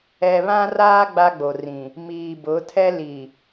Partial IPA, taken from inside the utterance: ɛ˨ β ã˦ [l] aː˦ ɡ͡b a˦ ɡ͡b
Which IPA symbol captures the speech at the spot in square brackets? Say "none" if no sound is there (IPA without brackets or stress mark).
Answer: r